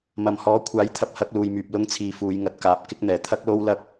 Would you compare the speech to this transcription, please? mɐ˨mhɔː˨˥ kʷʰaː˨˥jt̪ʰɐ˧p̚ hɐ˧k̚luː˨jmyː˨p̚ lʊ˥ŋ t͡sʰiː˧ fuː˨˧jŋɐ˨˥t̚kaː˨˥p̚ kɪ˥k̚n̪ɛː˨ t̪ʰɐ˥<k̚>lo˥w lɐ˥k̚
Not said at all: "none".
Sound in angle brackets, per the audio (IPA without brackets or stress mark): k̚